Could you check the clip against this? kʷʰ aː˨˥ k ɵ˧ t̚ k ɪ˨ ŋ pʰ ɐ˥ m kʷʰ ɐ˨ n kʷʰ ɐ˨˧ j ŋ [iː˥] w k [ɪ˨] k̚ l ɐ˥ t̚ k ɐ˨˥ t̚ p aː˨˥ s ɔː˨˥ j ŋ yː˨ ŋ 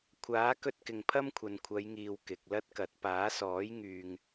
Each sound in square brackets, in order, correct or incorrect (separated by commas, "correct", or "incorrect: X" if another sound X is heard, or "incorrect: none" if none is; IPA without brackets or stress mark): incorrect: iː˨, correct